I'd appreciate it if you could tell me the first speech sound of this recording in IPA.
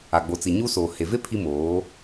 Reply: a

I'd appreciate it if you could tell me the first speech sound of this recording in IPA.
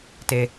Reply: t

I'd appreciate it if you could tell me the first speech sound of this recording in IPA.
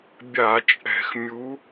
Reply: bʲ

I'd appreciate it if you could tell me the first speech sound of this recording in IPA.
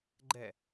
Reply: ɡ͡ǃ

